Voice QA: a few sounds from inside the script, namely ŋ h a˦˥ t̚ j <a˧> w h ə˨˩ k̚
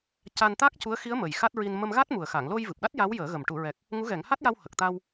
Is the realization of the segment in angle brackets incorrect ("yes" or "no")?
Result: no